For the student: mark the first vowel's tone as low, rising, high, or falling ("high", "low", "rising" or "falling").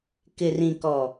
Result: low